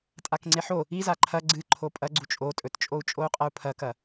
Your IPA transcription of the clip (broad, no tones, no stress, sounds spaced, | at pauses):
tʼ a k ŋ͡ǀ e ħ o | i z a ǃʰ ɐ ɡ͡ǀ ɨ ǃʰ o pʼ ɐ ɡ͡ǀ u t͡ʃʼ o tʼ ɵ t t͡ʃʼ o u̯ t͡ʃʼ o u̯ qʼ ɐ u̯ pʰ ɐ k ɐ